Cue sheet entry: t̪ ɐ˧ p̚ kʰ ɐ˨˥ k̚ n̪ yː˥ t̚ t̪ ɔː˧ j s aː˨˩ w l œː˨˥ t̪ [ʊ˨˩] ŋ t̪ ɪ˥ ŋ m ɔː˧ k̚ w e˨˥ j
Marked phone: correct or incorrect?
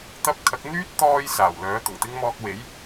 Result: correct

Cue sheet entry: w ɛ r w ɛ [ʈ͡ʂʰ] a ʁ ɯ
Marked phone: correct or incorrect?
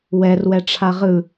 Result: correct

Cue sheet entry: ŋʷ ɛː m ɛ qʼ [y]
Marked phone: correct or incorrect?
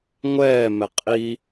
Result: incorrect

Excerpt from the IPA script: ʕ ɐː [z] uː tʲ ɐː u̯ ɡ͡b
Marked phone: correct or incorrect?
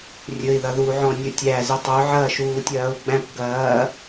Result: incorrect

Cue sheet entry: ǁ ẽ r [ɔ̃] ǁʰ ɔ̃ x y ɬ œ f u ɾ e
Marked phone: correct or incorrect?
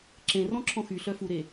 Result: correct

